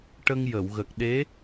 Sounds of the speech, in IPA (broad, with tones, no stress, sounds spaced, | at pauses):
ʈ ə˧ ŋ j ə˨˩˨ w ɣ ə˨˩ k̚ ɗ e˧˥